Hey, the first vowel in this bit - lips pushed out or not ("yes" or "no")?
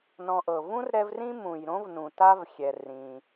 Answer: yes